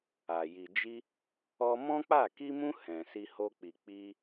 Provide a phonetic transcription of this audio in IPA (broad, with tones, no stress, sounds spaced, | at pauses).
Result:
a˨ j i˨ d͡ʒ i˧ | ɔ˧ m ɔ̃˦ k͡p a˦˨ k i˧ m ũ˧ h ɛ̃˨ s i˧ h o˧ k͡p i˨ k͡p i˧